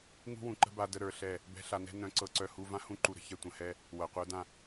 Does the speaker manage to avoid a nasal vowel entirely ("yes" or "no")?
no